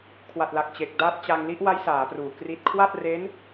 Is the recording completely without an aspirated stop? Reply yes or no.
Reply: no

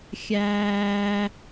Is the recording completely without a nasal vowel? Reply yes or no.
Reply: yes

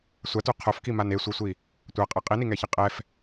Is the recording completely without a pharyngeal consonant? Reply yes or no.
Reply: yes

